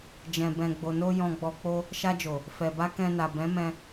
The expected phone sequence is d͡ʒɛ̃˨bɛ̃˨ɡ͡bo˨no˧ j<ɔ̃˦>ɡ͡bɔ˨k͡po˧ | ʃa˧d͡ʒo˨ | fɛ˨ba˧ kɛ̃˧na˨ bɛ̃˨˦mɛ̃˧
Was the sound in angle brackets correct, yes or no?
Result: no